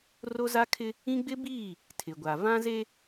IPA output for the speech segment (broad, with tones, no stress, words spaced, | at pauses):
ro˦za˦kʰɪ˦ | ĩ˦ɡ͡bɪ˦biː˦˨ | tʰɪ˨ɡʷa˨ vã˦zeː˦